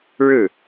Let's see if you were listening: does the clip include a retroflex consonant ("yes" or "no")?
yes